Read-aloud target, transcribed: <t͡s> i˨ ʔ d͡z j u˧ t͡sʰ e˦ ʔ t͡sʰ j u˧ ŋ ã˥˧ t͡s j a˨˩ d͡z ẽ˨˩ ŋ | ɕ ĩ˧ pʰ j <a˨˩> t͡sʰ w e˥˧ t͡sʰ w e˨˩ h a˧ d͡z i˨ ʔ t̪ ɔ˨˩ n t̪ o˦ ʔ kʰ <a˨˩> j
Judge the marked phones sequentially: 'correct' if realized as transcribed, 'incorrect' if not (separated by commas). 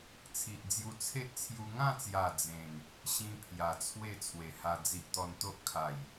incorrect, correct, correct